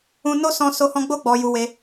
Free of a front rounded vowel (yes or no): yes